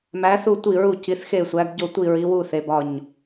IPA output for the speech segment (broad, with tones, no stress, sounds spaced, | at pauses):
m æ˨˦ θ u˦˨ tʷ i˦˨ ɹ u˦˨ c i˨˦ θ x e˦˨ sʷ æ˨˦ ɡ ɟ o˦˨ tʷ i˦˨ ɹ i˨˦ w u˦˨ θ e˨˦ b ɒ˦˨ ɲ